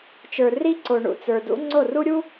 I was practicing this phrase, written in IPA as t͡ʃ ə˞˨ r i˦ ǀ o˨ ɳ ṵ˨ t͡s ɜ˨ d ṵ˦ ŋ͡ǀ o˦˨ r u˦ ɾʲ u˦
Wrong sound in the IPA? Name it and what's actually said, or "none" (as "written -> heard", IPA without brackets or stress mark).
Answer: ɜ˨ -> ə˞˨